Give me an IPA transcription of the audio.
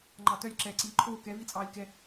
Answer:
ŋ͡ǃɑtœlʲ ǁɛːǀiːǃʰoː kɛ vit͡sʼɑːlʲkɛ

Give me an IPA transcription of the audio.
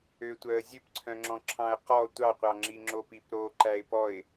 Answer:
øtʷœə̯ zʲøpǀʰœ̃ŋ͡ǁɔ̃ǁʰɑ̃ə̯ qɔ tʷɑqʷɑŋ͡ǁiŋ͡ǁop ipɾo ǃæɪ̯pɔɪ̯

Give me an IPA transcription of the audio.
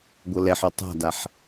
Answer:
ɡʷɤlɛħɔ tˤa̤daħ

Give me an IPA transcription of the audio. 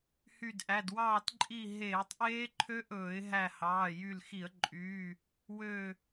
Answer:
hy˧˩dʔæ˩˧˩dwɑː˥˨tǃʼi˥˨ ɦeː˧˩˧tˤ ʔeː˦˥ǃʰø˦˥ʔɵː˧˩˧ɪ̯ɦæ˧˩ hɑː˩˧˩jy˧˩lxi˧˩˧ə̯ǃʼyː˩˧˩ | wø˧˩

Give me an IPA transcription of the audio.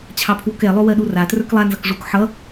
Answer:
t͡ɕʰɑpʰwokɛ lˠowɜɗura trə˞klˠa nzʌkʐuk ħʌ

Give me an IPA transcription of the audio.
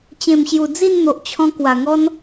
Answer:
t͡ɕẽ˨˩mɕju˨˩ d͡zi˥˧nn̪o˨ʔt͡ɕʰɔ̃˧ kwa˨˩ŋɔ˦n

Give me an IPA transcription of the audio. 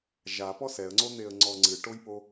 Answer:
ʒapɔ sɛə̯ŋ͡ǀon̪eə̯ŋ͡ǀɔ ŋ͡ǀɨʈojpo

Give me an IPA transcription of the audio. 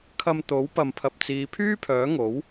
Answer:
kʰɐ˧mt̪o˨˥w pɐ˨mpʰɐ˨p̚t͡siː˨˧ pʰyː˥pʰœː˨˥ŋo˨˥w

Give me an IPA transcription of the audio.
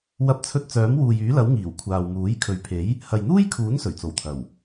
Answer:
wɐ˧p̚t͡sʰɵ˧t̚ t͡sœː˨˥mwuː˨jyː˨˥lɐ˨˥w ŋiː˨˩wkʷʰaː˨wmuː˨˥j kʰɵ˨ɥpʰe˨˥j | hɐ˨jn̪uː˥jkʰuː˨˥n sɵ˨˩ɥt͡so˨˩wt̪ʰɐ˨˩w

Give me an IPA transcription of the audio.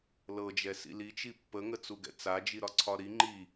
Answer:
lɤd͡ʒɛ sḭli t͡ʃipːə ŋət͡suɡɛ̰t͡sa d͡ʒiɾɒǀʰɒɾi ŋ͡ǃi

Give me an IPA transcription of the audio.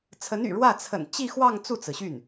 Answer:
t͡sʰə˧˥ny̰˨˩ɻwä˥˩ t͡sʰə̰˨˩n t͡ɕi˥˧xwɑ˥˧ŋ t͡su˥˩t͡sɹ̩˩ɕy˥˩n

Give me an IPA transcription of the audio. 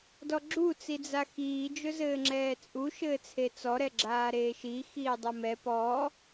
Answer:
dɔɡ͡ǁu t͡sid͡zaxiː d͡ʒɵzɘːŋ͡ǁɛːt͡sʼu ʃɘːt͡sʰet͡sɔ ɾɛɡ͡ǁaːɾeːʃi xiːdˤumɛ pɔ

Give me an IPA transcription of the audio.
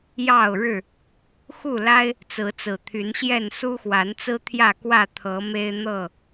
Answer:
jɑ˥˨ʊ̯ɻɻ̩˥˨ | xu˥˨la˦ɪ̯ | t͡sɹ̩˨˦t͡sɹ̩˨˩ t̪ʰy˨˦nɕjɛ˥˨n su˦xwa˨˦nt͡sɹ̩˦ t̪ʰjä˥˨kwä˥˨t̪ʰɤ˨˦ me˦ɪ̯n̪ɤ˥˨

